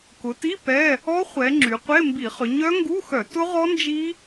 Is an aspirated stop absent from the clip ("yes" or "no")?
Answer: yes